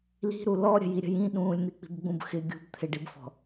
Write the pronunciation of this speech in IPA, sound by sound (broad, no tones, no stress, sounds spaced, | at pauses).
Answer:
l i̤ ɾ u l ɔ ɾʲ ə̤ j i ɾʲ ə̤ j ĩ ɗ ũː lʲ n̪ i k͡p i̤ b ɡ͡b ũ b x ɪ ɡʲ ṳ b t̪ʰ ɪ ɖ i b f ɔ̤